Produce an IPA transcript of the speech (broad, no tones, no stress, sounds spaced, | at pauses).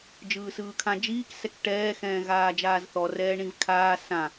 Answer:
d͡ʒ ɯː s ɯː kʰ ã d͡ʒ iː k s ɛ k ʈ ɛː x ɛ̃ː ɣ aː d͡ʒ aː z θ ɔ r ɛː ɳ ĩ v kʰ aː s ã